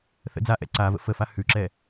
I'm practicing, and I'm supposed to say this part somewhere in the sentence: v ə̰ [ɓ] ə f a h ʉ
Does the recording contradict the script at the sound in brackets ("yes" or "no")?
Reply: yes